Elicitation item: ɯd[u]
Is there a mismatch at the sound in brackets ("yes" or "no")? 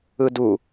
no